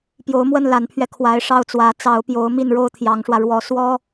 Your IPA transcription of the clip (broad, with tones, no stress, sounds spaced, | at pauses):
p j o˧˥ ʊ̯ m w ə˥˩ n l a˧˥ n pʰ ɥ ɛ˧ kʰ w a˧˥ ɪ̯ ʂ ɑ˥˩ ʊ̯ t͡s w ä˧˥ t͡s ɑ˧˥ ʊ̯ p j o˧˥ ʊ̯ m i˥˩ n ɻ o˥ ʊ̯ t̪ʰ j ɑ˧˥ ŋ ʂ w ä˧ ɻ w ɔ˧˥ s w ɔ˥